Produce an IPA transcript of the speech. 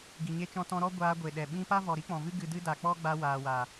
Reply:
ɡi˨ɲe˧t͡ʃɔ̃˧ tɔ̃˧ɾɔ˦ ɡʷaː˧ɡʷe˨ɗɛ˨ ɓĩ˧pa˦vɔ˨ ɾi˦k͡pɔ̃˨vɨ˦ ɡɨ˧dɨ˦da˨ k͡pɔ˦ɡ͡ba˧ waː˨wa˨

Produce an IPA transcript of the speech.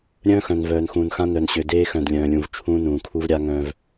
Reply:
ɾʲœ̃ː˦xœ̃˨n vœː˨nxũː˨nxã˦ nœ˨nɕø˨ deː˦xœ̃˨dlʲœ̃ː˨lʲũ˨v t͡ʃʰũː˦nũː˨kʰu˦vɾʲa˦ ŋœ̃˦v

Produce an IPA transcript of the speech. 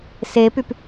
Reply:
sepyp

